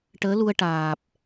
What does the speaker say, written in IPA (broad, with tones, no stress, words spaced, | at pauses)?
ʈəː˧˥lu˧ə̯ ʈaː˨˩p̚